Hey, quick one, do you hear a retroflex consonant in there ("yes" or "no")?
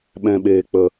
no